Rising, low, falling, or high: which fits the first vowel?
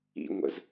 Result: high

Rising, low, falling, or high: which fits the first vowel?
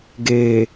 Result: low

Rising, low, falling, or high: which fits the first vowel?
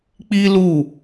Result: high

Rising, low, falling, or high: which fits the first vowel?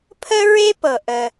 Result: high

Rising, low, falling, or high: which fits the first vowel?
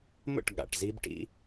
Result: falling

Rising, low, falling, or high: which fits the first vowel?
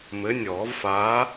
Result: rising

